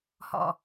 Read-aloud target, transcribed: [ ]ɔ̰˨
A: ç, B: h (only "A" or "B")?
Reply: B